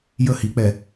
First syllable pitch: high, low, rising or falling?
falling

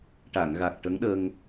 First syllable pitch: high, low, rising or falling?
low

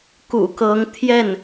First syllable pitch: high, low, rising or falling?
low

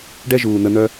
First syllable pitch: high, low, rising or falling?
high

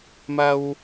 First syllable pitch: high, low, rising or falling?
high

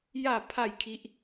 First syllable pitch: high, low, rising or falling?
falling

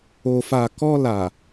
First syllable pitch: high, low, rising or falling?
low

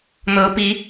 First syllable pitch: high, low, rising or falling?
rising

